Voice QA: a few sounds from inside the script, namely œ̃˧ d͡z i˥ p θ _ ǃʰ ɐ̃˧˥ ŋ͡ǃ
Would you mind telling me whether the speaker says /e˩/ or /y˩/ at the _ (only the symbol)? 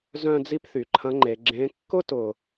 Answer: y˩